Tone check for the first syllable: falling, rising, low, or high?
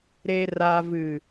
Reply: low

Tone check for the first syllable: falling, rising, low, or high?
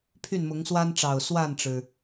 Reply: falling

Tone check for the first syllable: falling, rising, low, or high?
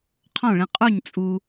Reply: falling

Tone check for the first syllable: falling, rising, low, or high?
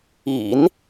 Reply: low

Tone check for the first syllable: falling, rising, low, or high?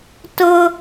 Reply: high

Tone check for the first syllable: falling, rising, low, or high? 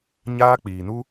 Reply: high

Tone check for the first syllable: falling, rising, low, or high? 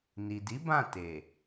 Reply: low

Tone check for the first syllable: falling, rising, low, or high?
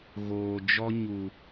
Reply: low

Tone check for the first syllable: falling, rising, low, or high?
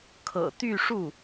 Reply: low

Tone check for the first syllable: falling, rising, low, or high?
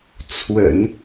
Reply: low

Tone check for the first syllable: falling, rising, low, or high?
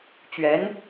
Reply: rising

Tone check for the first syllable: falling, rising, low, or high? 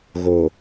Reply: low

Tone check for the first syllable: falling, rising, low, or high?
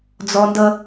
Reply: low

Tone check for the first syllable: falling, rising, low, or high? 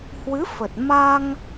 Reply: rising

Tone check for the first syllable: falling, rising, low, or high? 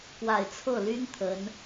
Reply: low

